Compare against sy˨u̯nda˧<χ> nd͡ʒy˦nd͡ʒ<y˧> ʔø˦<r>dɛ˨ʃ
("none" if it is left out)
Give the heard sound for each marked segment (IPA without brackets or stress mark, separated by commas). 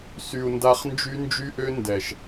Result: χ, y˦, n